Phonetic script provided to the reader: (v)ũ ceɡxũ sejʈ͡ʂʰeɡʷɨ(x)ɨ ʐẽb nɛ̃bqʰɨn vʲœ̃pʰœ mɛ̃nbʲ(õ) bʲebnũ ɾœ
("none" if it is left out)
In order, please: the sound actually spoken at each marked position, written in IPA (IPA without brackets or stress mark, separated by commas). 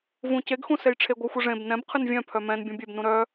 v, xʷ, ũ